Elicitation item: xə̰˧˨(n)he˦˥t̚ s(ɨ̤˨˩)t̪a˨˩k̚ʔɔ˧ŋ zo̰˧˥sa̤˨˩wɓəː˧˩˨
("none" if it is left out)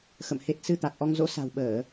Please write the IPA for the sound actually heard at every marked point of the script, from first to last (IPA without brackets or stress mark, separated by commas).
m, ɨ˧